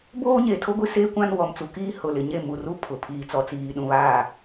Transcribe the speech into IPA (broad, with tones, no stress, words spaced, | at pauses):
boː˦ɲe˨ tʰo˦ɡʷi˦ seː˦kʷã˦n wɔ˨mt͡su˨kiː˦ hʊ˨lɪ˨ ɲe˦˨mu˨ru˦ pʰʊ˨ pʰiː˨t͡sɔ˨t͡siː˨ ɗũ˨βaː˦˨